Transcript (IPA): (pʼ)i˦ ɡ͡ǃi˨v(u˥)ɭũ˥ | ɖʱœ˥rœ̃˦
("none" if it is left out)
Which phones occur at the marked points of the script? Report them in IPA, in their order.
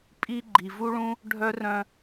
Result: pʼ, u˥

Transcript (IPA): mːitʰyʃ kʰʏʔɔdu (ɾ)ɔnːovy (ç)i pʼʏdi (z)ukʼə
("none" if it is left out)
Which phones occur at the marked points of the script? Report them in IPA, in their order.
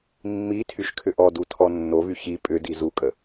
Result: tʰ, ç, z

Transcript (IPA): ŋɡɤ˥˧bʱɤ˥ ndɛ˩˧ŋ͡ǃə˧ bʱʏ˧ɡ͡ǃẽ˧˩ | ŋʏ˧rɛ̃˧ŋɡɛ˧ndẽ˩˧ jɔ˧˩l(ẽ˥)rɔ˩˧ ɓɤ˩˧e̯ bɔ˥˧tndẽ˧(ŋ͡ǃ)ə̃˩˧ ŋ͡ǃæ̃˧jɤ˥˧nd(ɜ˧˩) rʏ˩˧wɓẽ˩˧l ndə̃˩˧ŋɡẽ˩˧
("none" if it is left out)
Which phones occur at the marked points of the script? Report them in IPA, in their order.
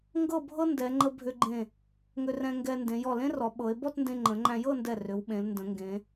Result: ẽ˥, ŋ͡ǃ, ɛ˧˩

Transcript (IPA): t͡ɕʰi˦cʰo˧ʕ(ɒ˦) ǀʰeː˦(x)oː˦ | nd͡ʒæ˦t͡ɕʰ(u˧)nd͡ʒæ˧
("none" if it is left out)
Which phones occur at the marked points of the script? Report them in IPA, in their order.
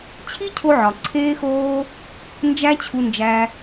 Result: ɒ˨, x, u˧

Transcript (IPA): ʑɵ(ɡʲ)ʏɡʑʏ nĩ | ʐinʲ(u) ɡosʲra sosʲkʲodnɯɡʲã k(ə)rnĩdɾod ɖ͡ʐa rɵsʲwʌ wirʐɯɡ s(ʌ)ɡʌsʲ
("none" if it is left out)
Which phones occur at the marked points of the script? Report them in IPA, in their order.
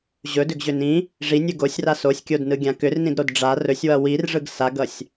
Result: d, ɯ, ʏ, a

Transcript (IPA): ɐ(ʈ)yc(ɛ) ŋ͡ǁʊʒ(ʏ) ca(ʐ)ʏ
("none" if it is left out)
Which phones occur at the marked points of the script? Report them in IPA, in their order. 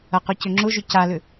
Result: q, ʏ, ʏ, l

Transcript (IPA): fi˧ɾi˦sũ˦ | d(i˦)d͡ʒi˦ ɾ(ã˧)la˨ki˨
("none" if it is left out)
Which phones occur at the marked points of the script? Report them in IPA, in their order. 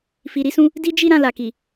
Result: i˦, ã˧

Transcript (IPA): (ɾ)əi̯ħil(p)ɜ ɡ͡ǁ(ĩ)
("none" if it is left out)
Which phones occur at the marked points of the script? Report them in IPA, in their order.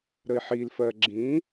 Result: ɾ, f, ĩ

